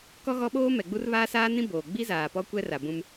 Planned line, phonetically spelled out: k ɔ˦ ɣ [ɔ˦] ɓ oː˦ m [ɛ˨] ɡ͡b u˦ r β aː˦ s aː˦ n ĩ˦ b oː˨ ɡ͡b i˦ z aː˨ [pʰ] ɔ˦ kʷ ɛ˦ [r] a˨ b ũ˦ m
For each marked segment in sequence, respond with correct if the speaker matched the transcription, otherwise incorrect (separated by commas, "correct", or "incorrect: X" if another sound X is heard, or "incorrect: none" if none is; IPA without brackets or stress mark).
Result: correct, correct, incorrect: p, correct